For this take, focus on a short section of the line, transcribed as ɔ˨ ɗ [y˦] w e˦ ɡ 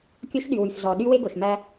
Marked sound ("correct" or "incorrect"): correct